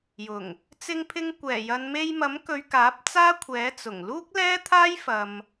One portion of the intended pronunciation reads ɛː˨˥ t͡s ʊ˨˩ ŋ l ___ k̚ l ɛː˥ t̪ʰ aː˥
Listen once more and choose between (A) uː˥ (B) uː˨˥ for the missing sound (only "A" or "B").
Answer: A